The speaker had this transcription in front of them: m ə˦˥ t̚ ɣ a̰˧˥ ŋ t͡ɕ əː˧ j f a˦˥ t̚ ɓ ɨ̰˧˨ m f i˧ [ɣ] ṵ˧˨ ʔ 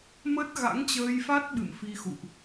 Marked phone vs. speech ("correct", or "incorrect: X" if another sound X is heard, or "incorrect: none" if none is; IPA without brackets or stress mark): incorrect: x